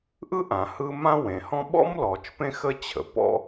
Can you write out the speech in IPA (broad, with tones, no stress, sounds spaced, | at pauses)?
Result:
ʔ ɯ˥ ʔ ã˩ h ɯ˥ m ã˥ w ẽ˩ h ɔ̃˥ ɓ ɔ̰˥ m l ɔ˩ t͡ʃ p ẽ˥ x ə˥ t͡ɕʰ ə̰˩ p ɔ̰˥